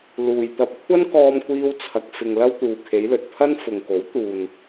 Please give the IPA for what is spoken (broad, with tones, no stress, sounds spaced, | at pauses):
l uː˨ j t̪ ɐ˧ p̚ kʷʰ ɐ˥ n k ɔː˧ m kʷ iː˧ w t͡sʰ ɐ˨ k̚ f ɪ˨ ŋ l ɐ˧ w t̪ uː˨ kʰ e˨˧ j l ɵ˨ t̚ pʰ ɐ˥ n f ʊ˨ ŋ k o˨˥ w t̪ uː˨ n